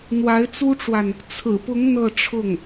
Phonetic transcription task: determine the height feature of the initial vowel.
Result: low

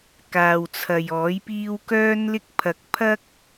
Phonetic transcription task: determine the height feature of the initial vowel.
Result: low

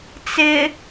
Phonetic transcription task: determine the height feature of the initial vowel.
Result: high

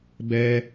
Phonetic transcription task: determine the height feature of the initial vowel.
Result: mid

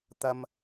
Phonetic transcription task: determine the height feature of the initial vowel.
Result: low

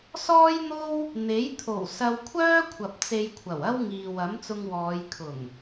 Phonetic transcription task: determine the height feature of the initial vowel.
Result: mid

